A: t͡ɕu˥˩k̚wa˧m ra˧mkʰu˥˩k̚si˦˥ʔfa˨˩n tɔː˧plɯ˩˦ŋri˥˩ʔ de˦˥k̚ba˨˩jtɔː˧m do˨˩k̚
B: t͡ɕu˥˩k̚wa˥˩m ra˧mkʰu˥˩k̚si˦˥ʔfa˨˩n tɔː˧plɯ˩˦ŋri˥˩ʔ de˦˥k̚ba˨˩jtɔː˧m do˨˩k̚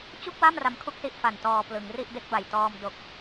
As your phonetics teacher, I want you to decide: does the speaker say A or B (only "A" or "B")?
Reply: B